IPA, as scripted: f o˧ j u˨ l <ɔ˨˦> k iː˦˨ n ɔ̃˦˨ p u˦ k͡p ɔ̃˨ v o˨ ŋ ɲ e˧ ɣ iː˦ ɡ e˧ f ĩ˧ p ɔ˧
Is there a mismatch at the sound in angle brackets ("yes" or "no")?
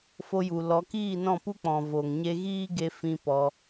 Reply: no